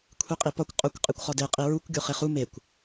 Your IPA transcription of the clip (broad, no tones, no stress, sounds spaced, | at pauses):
kʷʰ i qʼ i p ɒ kʷ qʼ o kʷ qʼ e kʷ χ ɒ d e qʼ i ɹ u kʷ ɡʲ o χ e χ u m e kʷ